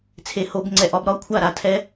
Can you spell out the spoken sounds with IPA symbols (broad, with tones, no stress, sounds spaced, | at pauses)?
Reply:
t͡sʰ e˨ h o˨˩˦ b ŋ͡ǀ ɛ˨ ʔ ɒ˨˩˦ b ɾ ɒ˨˥ kʷʰ a˥˩ ɾ a˨ tʰ ɛ˦